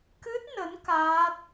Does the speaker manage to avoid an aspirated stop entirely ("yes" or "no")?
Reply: yes